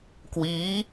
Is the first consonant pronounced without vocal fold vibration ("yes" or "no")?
yes